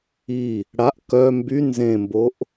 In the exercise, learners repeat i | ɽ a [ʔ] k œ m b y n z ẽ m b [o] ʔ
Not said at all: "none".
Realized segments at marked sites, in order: ʔ, o

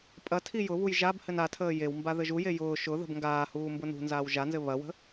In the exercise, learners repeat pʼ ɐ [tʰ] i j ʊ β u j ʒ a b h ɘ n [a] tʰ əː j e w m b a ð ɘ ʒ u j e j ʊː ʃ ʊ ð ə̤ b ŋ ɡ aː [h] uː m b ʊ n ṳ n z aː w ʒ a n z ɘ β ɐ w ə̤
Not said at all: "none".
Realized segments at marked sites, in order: tʰ, a, h

